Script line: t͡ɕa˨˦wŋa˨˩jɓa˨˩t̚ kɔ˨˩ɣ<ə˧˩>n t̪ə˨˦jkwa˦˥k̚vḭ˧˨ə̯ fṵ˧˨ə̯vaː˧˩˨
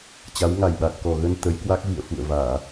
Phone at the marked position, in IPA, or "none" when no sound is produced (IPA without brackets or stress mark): ə˧